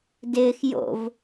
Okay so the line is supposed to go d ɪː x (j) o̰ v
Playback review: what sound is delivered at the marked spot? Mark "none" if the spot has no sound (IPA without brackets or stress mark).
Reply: j